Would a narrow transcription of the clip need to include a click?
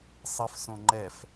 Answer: yes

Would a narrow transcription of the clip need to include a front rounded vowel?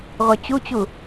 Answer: yes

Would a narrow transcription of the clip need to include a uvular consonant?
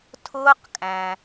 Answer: yes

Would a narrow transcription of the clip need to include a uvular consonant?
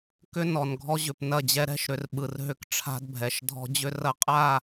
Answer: yes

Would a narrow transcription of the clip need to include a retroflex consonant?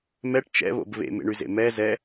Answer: yes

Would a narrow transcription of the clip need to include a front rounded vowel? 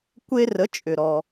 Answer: yes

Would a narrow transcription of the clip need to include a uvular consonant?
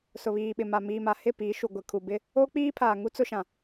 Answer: no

